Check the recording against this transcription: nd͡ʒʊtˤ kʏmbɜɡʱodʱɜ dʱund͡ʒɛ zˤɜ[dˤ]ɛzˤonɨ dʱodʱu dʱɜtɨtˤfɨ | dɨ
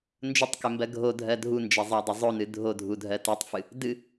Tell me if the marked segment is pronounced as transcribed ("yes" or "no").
yes